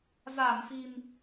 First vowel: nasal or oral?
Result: oral